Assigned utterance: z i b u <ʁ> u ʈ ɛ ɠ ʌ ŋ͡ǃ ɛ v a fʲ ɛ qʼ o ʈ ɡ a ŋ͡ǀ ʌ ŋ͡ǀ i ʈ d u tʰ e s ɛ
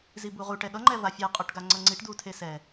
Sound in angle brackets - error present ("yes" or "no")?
no